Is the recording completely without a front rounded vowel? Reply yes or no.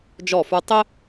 yes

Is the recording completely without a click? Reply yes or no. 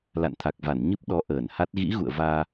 yes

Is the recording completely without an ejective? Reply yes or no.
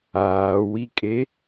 no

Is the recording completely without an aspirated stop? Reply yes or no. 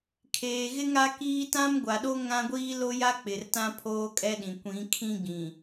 no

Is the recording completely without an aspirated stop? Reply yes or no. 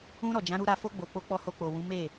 yes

